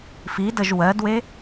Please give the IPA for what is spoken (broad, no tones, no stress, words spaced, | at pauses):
fidəʒ wɜdwe